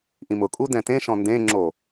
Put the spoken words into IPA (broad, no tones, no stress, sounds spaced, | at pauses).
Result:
ʔ ĩ m ʊ kʼ u d ɛ̃ t ẽ ʃ ɔ̃ n d ẽ ŋ͡ǁ o